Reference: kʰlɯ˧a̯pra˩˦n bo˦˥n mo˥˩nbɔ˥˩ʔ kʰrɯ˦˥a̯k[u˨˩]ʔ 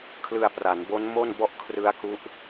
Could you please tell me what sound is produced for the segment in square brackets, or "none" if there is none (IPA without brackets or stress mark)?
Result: u˦˥